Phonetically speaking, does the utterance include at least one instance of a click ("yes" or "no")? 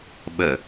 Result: no